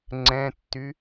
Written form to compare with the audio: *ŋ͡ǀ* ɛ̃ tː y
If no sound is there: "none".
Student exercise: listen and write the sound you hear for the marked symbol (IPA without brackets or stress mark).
ŋ͡ǀ